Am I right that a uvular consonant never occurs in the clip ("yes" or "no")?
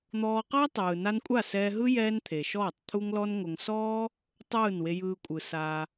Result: no